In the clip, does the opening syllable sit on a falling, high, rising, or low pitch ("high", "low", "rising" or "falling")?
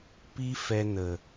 high